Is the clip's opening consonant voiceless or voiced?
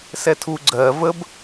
voiceless